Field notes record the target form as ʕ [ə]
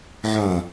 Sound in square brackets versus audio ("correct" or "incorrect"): incorrect